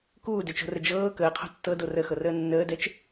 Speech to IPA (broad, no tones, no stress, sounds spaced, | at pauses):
k uː d ɛ t͡ʃ o̤ r ə d͡ʒ ɤː k əː qʰ o̤ tː ɤ d o r ə x ɤ r əː nː əː d ɛ t͡ʃ